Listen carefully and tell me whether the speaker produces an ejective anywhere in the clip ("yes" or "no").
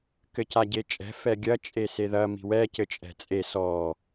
yes